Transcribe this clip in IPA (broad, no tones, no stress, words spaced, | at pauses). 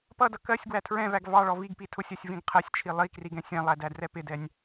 pʌdʌ kɜsʲ ɡwætʰɹɛ̃væɡ vɑɭɔ viɡpi tʰʊsʲɜsʲ vĩɡqʰɜsʲt͡ʃʰi lˠi kriɡɛ̃sʲɛ̃lˠæ dædrɛpɪdɛnʲ